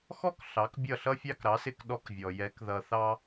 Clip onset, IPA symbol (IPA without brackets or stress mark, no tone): x